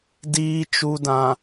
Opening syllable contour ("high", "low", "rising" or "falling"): low